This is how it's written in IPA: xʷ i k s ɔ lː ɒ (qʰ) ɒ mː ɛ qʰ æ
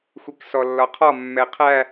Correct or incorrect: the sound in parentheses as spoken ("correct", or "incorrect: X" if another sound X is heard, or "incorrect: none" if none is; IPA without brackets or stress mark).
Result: correct